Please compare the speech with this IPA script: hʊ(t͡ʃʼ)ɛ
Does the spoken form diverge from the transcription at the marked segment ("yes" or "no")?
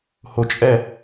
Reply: no